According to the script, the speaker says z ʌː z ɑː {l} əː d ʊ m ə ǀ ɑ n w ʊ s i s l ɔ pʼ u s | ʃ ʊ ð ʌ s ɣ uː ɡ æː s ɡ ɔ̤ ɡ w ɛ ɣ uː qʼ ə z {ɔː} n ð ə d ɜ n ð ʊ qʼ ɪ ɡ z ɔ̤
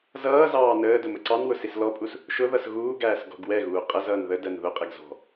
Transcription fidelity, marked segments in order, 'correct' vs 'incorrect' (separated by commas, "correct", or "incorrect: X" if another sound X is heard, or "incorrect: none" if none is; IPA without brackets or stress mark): incorrect: n, incorrect: ʌː